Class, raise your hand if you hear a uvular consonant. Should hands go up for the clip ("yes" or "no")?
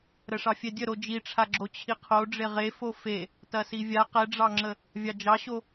yes